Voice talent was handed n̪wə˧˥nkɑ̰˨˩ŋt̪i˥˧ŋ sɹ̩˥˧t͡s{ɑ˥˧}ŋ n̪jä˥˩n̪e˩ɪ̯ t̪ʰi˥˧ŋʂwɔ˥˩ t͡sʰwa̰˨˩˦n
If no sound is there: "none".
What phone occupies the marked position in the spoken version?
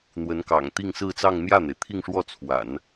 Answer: ɑ˥˧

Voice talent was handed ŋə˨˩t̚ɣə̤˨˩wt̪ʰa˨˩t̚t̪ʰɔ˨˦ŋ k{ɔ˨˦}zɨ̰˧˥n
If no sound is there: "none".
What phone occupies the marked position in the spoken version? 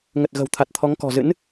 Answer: ɔ̤˨˩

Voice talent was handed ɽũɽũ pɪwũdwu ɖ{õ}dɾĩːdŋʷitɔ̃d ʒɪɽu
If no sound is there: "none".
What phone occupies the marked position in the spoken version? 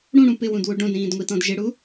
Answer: õ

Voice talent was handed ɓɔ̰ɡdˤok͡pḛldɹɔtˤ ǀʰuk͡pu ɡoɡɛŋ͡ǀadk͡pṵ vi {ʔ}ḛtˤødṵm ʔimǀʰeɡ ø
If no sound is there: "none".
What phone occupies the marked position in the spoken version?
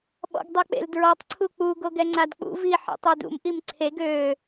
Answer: ħ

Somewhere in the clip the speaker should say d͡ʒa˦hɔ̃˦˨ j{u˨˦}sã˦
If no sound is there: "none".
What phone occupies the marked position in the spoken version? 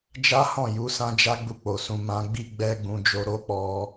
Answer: u˨˦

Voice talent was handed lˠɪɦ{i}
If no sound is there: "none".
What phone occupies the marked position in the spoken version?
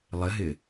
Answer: ɪ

